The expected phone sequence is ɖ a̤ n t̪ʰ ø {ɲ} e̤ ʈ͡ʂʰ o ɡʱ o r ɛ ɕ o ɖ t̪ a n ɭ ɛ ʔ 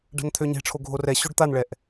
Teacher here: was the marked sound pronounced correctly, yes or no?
yes